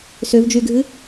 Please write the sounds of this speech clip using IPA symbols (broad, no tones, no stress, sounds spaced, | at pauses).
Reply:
s ø v d͡ʒ y ɡʱ ɨ